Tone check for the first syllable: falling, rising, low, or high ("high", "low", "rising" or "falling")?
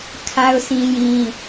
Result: high